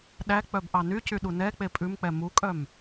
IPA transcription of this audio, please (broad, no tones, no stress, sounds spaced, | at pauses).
ɗ æ k͡p œ b ʔ ɑ n y c y ɗ u n ɛ k͡p e pʼ ʉ m k͡p ɛ m u kʼ œ m